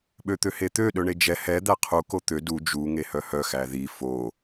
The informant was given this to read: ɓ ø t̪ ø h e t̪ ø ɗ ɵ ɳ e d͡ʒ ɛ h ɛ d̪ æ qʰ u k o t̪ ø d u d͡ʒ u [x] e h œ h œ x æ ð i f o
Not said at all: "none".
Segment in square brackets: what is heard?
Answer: ŋ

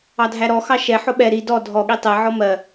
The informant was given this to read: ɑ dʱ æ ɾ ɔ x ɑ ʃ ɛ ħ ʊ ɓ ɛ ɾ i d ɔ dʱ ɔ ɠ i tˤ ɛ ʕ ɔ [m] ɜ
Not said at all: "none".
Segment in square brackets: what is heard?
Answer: m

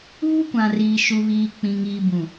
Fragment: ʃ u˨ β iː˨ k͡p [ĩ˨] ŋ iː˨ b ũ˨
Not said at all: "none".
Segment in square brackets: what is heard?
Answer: ĩ˨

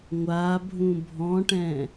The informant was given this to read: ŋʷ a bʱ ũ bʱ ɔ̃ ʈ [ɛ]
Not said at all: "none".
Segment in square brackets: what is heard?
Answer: ɛ̃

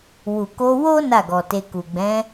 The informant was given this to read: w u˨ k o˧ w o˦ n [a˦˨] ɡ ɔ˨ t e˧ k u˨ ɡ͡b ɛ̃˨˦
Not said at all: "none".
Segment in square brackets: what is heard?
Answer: a˦˨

